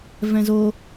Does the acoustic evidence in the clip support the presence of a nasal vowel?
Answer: yes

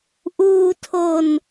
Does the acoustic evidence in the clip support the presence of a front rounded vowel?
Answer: no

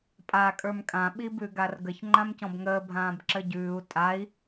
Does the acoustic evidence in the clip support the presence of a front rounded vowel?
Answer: no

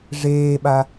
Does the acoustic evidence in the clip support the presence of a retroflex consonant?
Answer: yes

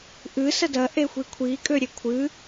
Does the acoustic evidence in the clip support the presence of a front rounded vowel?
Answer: yes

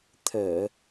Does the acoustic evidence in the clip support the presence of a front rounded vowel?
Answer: no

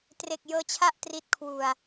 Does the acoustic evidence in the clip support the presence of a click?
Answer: no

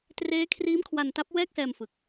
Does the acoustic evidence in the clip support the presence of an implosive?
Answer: no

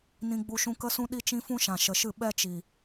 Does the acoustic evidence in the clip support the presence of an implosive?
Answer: yes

